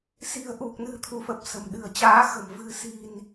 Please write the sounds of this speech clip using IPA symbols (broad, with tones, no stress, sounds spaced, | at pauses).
s i̤˨˩ ə̯ ʔ u˨˩ k̚ n ɨ̤˨˩ t̪ʰ u˧˩ f ə˨˩ p̚ s ə̤˨˩ m ɗ ɨ̤˨˩ ə̯ t͡ɕ aː˨˦ x ə̤˨˩ m v ɨ̤˨˩ s i̤˨˩ n